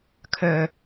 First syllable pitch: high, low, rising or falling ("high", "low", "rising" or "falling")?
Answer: low